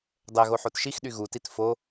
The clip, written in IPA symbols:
dˤɛ ɣoħotʃixɗy ɣutit fo

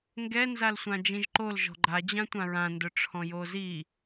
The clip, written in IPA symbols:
ŋɡɛ nzalsʷãd͡ʒĩʒǃol ʒɔ̤ɡ͡ǃad͡ʑã tʷãɹãndʊʈ͡ʂʰɔ̃ jozi

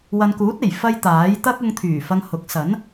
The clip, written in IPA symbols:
wɐ˨nkuː˨˥t̚e˨˩j fɐ˧j t̪aː˨˥j t̪ɐ˥k̚ʊ˧ŋ t̪ʰyː˨˩fɐ˧ŋ hʊ˨˥k̚ sɐ˨˥n

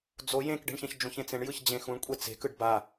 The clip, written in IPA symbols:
d͡zo jẽkɖe̤ɳçɛ̃ç d͡ʒũçẽt͡sẽɳ jɯçd͡ʑẽxũɳkʷʼe t͡se̤kɯɖ ba

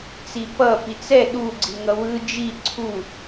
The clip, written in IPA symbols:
t͡sipʌ pit͡sɛ ɗuɡ͡ǀi ŋʌwɯ d͡ʒi ǀʰu

